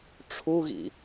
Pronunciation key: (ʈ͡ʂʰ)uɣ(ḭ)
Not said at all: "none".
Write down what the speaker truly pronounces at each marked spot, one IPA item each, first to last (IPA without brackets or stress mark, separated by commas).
ʈ͡ʂʰ, ḭ